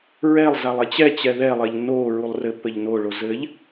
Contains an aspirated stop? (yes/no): no